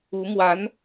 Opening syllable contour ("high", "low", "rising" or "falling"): rising